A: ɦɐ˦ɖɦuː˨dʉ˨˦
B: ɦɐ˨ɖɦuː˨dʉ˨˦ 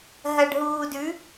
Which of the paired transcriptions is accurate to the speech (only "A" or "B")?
B